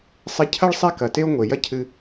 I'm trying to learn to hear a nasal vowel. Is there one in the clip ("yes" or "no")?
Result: no